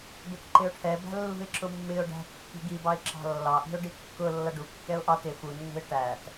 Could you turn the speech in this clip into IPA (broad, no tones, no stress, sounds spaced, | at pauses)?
b ɪ t ǃ ɪ ʊ̯ ʈʰ ɛ b æ̤ lː ṳ ɪ̯ ǁ ʊ mː ɪ ʊ̯ ɖ æ̤ kː i̤ ɡ i b ɑ ɪ̯ ǁ ɑ̤ lː ɑ ʔ i̤ ʊ̯ ɖ i kː ʊ lː ʌ ɖ u kː ɛ ʊ̯ ʔ ɑ t ɪ f u nː ṳ ɪ̯ ʈ æ t